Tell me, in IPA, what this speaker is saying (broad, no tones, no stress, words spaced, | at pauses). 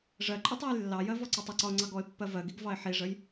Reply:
ʐɜǃʼitˤ ɛjlːɑjɜ vɔǀɔtˤəǀɒʊ̯ ŋ͡ǀɑɡɔɪ̯pːɜ vɜɡiɡ vɑɪ̯ħiʐəj